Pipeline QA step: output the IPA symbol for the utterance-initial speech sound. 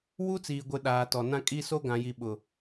w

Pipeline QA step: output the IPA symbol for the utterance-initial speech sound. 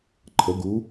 ǃʰ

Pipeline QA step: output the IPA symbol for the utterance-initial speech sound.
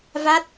v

